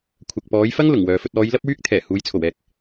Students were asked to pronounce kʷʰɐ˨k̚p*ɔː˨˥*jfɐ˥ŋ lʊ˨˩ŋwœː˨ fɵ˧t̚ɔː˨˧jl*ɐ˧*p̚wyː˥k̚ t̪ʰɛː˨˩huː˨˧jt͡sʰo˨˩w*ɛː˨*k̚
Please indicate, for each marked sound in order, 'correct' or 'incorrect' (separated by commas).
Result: incorrect, incorrect, incorrect